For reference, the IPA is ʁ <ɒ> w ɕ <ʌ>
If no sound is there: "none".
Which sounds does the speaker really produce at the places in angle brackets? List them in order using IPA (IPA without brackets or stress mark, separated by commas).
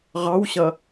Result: ɑ, ʌ